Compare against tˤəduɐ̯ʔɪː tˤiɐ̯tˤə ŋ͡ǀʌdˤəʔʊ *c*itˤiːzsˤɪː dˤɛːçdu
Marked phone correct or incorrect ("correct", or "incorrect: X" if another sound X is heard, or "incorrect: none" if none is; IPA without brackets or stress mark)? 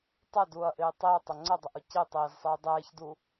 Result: correct